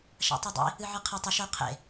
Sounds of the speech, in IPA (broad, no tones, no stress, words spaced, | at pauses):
ʃa̰tˤidˤḭ | ɨʕɨqʰatˤ ʉʃ ɵ qʰḛ